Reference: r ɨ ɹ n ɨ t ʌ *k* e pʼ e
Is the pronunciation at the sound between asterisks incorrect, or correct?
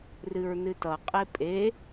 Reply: incorrect